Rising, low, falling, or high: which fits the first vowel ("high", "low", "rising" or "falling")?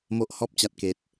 high